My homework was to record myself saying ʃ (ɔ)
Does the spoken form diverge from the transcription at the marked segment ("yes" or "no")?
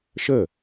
yes